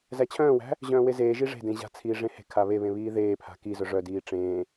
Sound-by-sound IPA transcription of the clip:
z æ t͡ɕʰ œ̃ː w æ̤ | ʑ œ̃ː w e z eː ʒ i ʐ e̤ d ẽ ʑ a̤ t͡sʰ iː ʐ ẽ h e̤ kʰ a β e β ẽ β iː ð eː pʰ a̤ k i z œ ʐ œ d iː ʈ͡ʂ ẽː

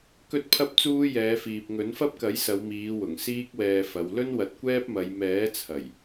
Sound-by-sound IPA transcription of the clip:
k ɵ˥ t̚ pʰ ɐ˥ p̚ t͡s uː˥ j ɛː˨˧ f iː˨ p̚ ŋ ɵ˨˥ n f ɐ˥ p̚ k ɐ˨˥ j s ɐ˨˧ w m iː˨˧ w ʊ˨˩ ŋ s iː˥ k̚ w ɛː˧ f ɐ˨˧ w l ɵ˥ n w ɐ˨˥ t̚ kʷ ɛː˥ p̚ m ɐ˨˧ j m ɛː˨˥ t͡sʰ ɐ˨˩ j

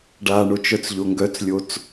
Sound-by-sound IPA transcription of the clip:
ɖ a ɳ o t͡ʃ œ t͡s ʎ o ŋ ɡ œ t͡s lʲ o t͡s

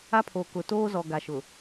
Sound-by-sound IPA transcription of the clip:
a˦ pʰ oː˨ k ʊ˨ t oː˦ z ɔ˨ ɡ a˨ ʃ ʊ˨

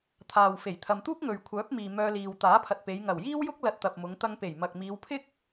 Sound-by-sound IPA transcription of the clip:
t̪ʰ aː˨ w f e˨˩ j t̪ʰ ɐ˨ m t̪ uː˥ k̚ ŋ ɵ˨ ɥ kʷʰ œː˨˥ p̚ m iː˨ m œː˧ l iː˨ w t̪ aː˨˥ pʰ ɐ˨ t̚ p e˨˧ j ŋ ɐ˨˩ w j iː˥ w j ʊ˥ k̚ l ɐ˧ t̚ t̪ ɐ˨ p̚ m ʊ˨˧ ŋ t̪ ɐ˧ ŋ p e˨˩ j m ɐ˨ k̚ m iː˨˧ w pʰ ɪ˥ k̚

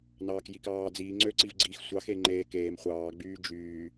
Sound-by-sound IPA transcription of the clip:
n ɑː k j i k ɑː d͡z iː ŋ͡ǀ ø ǀ i v ɡ͡ǀ iː x sʷ ɑ x e ŋ͡ǃ eː k eː m χʷ ɑː ɡ͡b yː d͡ʒ yː

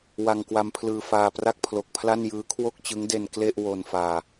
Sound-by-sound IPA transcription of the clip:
w a˧ ŋ k w a˧ m pʰ l ɯː˧ f aː˧ p r a˥˩ k̚ pʰ l o˨˩ k̚ pʰ l a˥˩ n j ɯː˦˥ kʰ w o˥˩ k̚ t͡ɕ ɯ˦˥ ŋ d e˧ n k l e˥˩ ʔ w o˧ n f aː˧

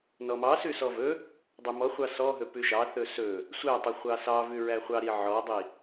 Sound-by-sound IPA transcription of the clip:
n ɔ m ɑ s ʉ s ɔ v ɵ | dˤ ɵ m ɔ χʷ ɑ s ɔ ɦ ɵ p ʉ ʃ ɑ θ ɵ s ɵ | sʷ æ tˤ ɵ χʷ ɑ s ɑ v ʉ ɹ æ χʷ ɑ ɾ i ʕ ɔ dˤ i

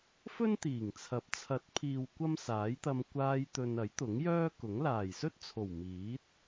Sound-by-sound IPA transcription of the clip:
f ɵ˥ n t̪ iː˨˩ ŋ t͡sʰ ɐ˨˥ p̚ t͡sʰ ɐ˨˥ t̚ pʰ iː˨ w kʷ ɐ˥ m s aː˨˥ j t̪ ɐ˧ m kʷ aː˧ j t̪ ɵ˨ n ɐ˨˥ j t̪ ʊ˨˥ ŋ j œː˥ k ʊ˨˥ ŋ l aː˨˩ j s ɵ˥ t̚ t͡sʰ o˨˩ w m iː˨˥ t̚

